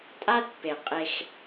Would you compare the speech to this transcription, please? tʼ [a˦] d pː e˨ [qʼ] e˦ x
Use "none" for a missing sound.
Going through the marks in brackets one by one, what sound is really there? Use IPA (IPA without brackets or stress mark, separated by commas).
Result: a˦, qʼ